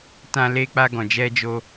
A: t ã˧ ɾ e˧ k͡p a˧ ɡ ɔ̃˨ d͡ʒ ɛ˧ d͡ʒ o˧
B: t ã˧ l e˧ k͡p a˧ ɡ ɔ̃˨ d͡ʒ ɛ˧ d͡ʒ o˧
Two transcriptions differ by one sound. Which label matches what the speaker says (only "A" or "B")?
B